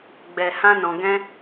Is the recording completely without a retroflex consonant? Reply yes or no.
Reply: yes